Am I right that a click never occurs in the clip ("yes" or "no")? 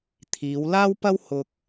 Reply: yes